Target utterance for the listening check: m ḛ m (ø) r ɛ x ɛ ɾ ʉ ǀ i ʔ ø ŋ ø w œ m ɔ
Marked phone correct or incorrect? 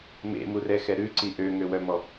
incorrect